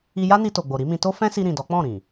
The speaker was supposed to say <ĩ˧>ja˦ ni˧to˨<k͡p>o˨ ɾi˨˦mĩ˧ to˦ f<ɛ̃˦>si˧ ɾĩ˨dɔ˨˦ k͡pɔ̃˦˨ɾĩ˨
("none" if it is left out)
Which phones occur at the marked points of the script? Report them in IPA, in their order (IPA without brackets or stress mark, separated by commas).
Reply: i˧, ɡ͡b, ɛ̃˦